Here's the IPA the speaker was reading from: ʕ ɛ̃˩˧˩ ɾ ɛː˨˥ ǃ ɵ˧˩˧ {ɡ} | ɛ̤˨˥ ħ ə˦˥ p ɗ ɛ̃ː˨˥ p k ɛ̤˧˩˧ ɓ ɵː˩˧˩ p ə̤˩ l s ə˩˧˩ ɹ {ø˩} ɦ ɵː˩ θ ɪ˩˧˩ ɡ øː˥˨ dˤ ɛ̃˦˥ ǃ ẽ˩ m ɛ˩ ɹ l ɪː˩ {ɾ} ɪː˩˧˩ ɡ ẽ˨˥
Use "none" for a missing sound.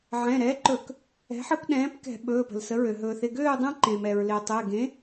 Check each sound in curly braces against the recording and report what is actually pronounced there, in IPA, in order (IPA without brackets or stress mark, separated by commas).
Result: k, ø˩, tˤ